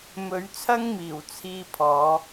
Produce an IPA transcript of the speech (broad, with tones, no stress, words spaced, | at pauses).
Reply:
mɵ˨˥ɥt͡sʰɐ˥ŋmiː˨˩w t͡sʰiː˥pʰɔː˨˥